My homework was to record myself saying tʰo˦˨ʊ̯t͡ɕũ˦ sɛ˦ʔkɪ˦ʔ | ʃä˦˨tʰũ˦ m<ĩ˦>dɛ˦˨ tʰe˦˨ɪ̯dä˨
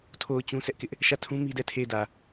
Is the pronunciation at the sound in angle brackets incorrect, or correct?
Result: incorrect